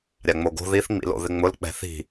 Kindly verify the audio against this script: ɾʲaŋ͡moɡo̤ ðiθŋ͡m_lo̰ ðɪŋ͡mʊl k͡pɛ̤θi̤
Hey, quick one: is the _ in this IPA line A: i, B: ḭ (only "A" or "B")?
B